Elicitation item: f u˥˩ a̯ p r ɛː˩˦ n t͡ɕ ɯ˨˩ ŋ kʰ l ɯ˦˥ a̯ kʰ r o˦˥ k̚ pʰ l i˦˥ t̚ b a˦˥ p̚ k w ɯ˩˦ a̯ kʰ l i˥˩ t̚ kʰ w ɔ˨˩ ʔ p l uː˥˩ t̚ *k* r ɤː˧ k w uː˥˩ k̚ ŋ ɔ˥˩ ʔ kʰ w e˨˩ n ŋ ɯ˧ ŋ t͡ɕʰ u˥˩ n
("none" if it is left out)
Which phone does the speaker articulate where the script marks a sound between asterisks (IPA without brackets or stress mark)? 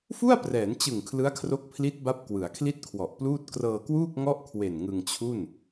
k